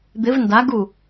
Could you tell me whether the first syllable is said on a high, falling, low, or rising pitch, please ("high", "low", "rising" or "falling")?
rising